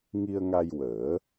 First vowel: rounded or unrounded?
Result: unrounded